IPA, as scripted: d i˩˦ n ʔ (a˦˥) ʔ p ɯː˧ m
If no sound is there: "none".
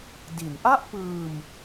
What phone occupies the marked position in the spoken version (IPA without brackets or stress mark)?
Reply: a˥˩